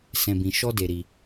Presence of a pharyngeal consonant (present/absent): absent